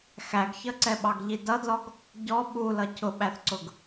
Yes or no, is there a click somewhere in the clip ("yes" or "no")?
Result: yes